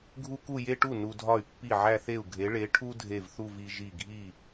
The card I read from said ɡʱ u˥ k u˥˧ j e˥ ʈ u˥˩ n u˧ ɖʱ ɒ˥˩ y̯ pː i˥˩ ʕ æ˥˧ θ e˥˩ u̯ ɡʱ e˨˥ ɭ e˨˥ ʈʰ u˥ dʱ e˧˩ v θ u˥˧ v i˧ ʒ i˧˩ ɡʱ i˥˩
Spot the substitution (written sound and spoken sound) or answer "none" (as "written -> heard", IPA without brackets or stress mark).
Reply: ɖʱ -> dʱ